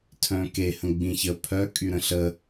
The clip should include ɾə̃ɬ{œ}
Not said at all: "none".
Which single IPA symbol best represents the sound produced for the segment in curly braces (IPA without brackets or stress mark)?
ə